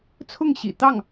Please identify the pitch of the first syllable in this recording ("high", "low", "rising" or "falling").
falling